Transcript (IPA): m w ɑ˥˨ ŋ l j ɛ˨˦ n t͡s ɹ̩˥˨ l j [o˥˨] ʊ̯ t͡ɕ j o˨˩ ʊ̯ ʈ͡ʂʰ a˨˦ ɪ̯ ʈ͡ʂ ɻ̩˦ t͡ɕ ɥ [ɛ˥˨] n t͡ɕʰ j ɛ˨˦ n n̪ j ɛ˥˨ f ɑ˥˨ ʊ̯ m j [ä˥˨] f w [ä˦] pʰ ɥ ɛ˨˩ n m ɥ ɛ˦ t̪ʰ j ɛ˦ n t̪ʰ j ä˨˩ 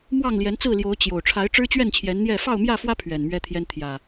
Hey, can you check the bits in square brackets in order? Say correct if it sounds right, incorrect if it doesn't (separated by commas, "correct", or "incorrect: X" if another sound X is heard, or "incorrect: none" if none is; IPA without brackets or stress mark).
incorrect: o˨˦, correct, correct, correct